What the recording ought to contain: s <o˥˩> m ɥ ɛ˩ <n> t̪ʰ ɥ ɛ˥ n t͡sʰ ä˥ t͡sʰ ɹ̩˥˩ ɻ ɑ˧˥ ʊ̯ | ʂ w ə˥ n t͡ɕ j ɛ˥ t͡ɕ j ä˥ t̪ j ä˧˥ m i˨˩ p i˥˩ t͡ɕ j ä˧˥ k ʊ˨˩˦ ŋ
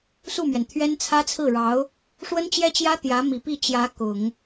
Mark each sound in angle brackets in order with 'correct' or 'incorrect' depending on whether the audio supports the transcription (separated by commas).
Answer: incorrect, correct